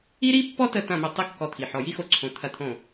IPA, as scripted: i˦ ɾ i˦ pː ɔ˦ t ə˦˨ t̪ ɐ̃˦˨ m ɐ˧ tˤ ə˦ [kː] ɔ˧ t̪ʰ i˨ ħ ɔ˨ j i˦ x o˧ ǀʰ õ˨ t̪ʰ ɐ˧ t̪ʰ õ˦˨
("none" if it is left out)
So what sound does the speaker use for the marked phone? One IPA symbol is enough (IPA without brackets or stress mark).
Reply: kː